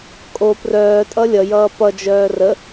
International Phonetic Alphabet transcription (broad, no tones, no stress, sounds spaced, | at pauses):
kʼ o p r œː tʼ ʌ lʲ ʌ j ʌː p ʌ d͡ʒ œː r ə